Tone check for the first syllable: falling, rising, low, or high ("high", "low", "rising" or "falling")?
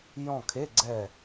falling